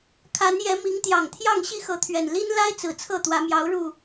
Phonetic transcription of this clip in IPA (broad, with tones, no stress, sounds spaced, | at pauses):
kʰ a˨˦ n j ɛ˨˦ m i˨˦ ŋ t̪ j ɑ˨˩ ŋ t̪ʰ j ɑ˥˨ ŋ ɕ i˥˨ x ɤ˨˦ t̪ʰ ɥ ɛ˨˩ n l i˦ n l a˦ ɪ̯ t͡s ɹ̩˨˩ t͡sʰ ɤ˥˨ t̪ w ä˨˦ m j ɑ˨˦ ʊ̯ ɻ u˨˩